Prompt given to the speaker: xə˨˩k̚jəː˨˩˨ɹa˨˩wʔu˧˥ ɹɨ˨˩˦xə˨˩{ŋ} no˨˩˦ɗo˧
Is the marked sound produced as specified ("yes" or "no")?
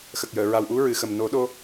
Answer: no